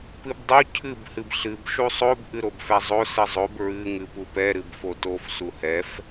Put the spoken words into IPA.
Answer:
pɨbdˤu cʰɨb hɨbɬɨb ʃusˤob ʔɨɾobfɛzˤo sɨzˤob ɹɨ ŋɨpupɛ ɾɨbfotof suhɛf

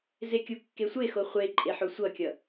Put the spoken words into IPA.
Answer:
zekʲukːesʷe xoχʷe ǃʼeħosʷʌkʲʌ

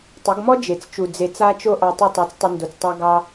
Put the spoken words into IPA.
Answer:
tˤə˨˦ɡmɔ˦d͡ʒe˨t͡st͡ʃu˨ d͡ze˨t͡sa˧t͡ʃo˧ ʔɑ˧tˤo˦˨tˤɑ˧t͡stˤə˧ ndo˨t͡stˤa˧ ɡɑ˧

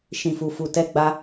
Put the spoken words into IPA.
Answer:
ʃĩ˨fu˨fu˨ tɛ˧ɡ͡ba˧

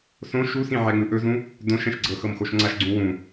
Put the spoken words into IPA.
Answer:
sõ ʃusĩ ʕɛŋ͡mɯʔɵzũ | dõʃ ɛ̃ʃɡ͡ǀɤxɤm xoʃŋ͡ǀaʃɡ͡ǀũ wũ

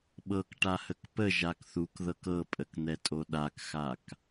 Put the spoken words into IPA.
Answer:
ɓɤkʈahək pə ʒakθukðɤk ɤpʼəkn̪ɛtʼo ɗakxak

